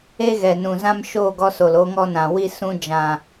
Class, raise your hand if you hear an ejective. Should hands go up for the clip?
no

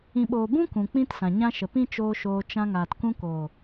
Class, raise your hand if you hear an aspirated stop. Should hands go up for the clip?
no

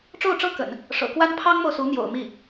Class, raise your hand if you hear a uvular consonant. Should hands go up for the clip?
no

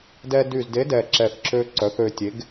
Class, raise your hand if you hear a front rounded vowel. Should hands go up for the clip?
yes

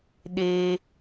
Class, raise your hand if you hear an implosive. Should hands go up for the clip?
yes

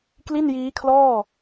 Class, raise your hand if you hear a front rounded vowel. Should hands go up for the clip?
no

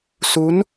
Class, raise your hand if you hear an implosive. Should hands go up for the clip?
no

